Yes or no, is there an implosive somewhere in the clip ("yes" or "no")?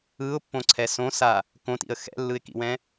no